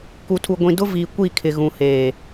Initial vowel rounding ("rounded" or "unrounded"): rounded